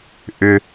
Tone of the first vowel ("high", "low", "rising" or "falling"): low